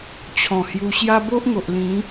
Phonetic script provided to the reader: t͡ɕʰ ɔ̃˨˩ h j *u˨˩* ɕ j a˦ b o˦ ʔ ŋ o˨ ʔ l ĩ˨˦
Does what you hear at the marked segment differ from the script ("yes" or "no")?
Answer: yes